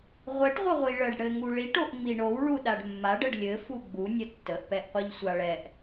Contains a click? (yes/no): no